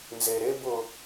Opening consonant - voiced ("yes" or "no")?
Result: yes